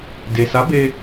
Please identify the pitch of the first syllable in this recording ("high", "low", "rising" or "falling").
low